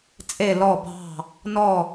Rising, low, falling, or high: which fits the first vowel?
falling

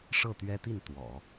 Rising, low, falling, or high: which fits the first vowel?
falling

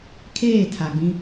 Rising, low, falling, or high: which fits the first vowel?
falling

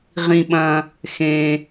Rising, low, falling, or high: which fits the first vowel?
low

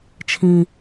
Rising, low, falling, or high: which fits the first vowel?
low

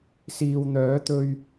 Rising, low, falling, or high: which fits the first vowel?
low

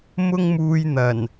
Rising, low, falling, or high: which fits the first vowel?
high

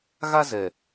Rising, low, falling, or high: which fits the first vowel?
high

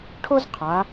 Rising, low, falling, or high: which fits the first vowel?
high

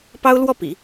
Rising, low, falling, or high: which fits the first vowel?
high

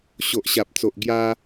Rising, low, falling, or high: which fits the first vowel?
low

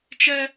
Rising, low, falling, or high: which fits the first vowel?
high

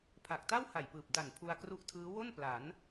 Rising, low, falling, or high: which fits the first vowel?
low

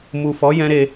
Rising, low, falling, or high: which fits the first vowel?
low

